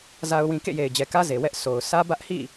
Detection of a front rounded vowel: absent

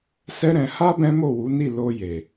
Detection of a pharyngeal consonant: absent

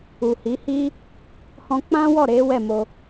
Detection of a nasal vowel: present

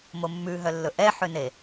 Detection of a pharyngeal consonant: present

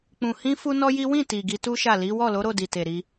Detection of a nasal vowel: present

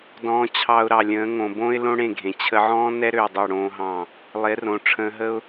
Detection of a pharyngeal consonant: present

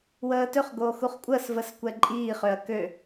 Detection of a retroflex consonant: absent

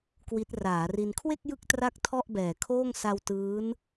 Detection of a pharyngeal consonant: absent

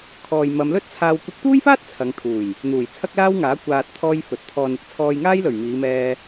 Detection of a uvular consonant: absent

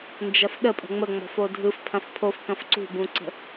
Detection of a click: present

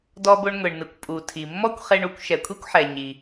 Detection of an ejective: present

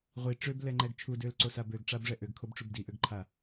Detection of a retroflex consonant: present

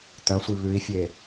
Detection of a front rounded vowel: present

